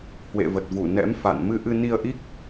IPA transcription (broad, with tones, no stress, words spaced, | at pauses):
hwḛ˧˨və˨˩t̚vu˧˩nɛ̰˧˥m fa̰˧˨n mɨ˧ʔɨ˧ ni˧ə̯ʔi˦˥k̚